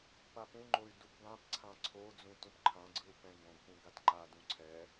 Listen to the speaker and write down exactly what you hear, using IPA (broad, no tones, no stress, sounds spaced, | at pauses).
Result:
p a p ũ ŋ͡ǃ o y̯ d u p ɡ ã p ǀʰ ã ǀʰ o d͡z ũ t ũ p ǃʰ ã ɡ͡ǀ ɯ u̯ p ɛ̃ ɡ õ ɡ p ũ ɡ a t ŋ͡ǃ a d ũ ǀʰ ɛ